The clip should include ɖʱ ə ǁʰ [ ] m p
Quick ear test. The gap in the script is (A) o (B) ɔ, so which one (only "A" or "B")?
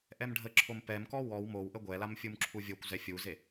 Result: A